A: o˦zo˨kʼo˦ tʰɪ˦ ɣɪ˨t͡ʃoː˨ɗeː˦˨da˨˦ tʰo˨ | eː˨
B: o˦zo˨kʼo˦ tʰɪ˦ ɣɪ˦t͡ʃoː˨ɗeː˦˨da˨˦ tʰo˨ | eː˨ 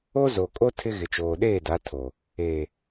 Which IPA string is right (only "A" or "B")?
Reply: A